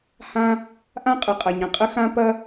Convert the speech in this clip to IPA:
h ã˥ | ʔ ã˥ qʼ ɯ˩ qʼ ɐ˩ ɲ ɐ̃˩ qʼ ə˥ x ã˥ p ɐ˥

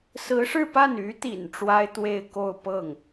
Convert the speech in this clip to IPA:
s ɹ̩˧˥ ʂ ɻ̩˥˧ p a˥˩ n y˧˥ t̪ ḭ˨˩ n ʈ͡ʂ w a˥ ɪ̯ t̪ w e˥˧ ɪ̯ k o˥˧ ʊ̯ p ɤ˥˩ ŋ

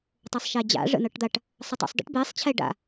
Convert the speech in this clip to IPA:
tˤ ɤ sˤ ʃ ɛ d͡ʑ a̰ ʐ ə̰ n ɤ ʈ d̪ a ʈ | sˤ ə tˤ ṵ sˤ d ə̰ ʈ b e sˤ t͡ɕʰ ɛ ɖ a̰

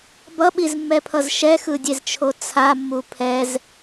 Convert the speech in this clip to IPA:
b ʌ ɓ i z mː ɛ pʰ ʌ z ʃ ɛ x ɯ dʲ e z t͡ʃʰ o t͡sʰ a mː u pʰ ɛ z

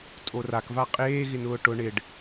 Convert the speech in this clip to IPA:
tʼ o r a k v a qʼ eː ɣ ɪ n ʊː ʈ ʊ ɳ ɪ ɖ

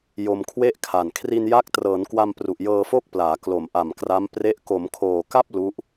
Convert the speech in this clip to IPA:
j o˧ m kʰ w e˥˩ ʔ kʰ a˨˩ n kʰ r i˧ n j a˦˥ k̚ t r ɤː˩˦ n k w a˧ m p r u˨˩ ʔ j ɤː˧ f o˥˩ k̚ p l aː˩˦ k l o˨˩ m ʔ a˨˩ m k r a˦˥ m p r e˦˥ ʔ k o˩˦ m kʰ oː˨˩ k a˥˩ p̚ l u˦˥ ʔ

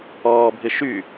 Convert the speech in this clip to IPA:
ɔː bʱ ɪ ʃ y

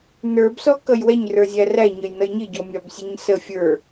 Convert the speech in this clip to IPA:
n ə˞ b s ɔ k ʌ j w ɛ ɲ r ə˞ zʲ æ r æ ɲ ə j n ʌ j ɲ ɪ ɟ ɔ mʲ ɑ b sʲ ɛ ɲ s ə fʲ ə˞

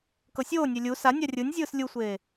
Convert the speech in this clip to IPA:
k ɤ sʲ oː nʲ e lʲ u s a nʲ a rʲ ɯ nʲ zʲ ɯː s lʲ u sʷ eː

